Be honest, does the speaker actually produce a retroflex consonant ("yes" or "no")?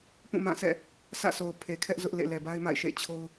no